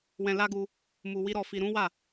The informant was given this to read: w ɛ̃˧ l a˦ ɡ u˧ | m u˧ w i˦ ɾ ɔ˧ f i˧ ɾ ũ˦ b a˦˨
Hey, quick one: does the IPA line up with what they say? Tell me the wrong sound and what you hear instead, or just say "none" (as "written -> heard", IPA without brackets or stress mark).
b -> w